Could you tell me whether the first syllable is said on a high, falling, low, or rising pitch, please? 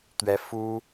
high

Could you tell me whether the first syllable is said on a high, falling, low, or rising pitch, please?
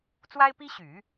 high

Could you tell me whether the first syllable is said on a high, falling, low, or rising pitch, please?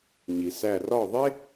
low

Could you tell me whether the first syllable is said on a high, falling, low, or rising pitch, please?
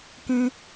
high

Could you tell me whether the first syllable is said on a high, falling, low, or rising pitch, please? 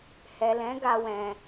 low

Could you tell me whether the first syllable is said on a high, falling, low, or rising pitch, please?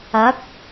rising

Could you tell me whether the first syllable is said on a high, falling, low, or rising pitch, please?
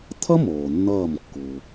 high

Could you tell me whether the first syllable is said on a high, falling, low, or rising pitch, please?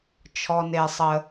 low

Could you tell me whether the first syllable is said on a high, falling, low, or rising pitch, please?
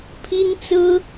high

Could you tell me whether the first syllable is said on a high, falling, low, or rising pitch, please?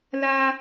high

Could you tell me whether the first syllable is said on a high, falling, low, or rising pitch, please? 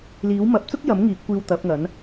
rising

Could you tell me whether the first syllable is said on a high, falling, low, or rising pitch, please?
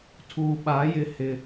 low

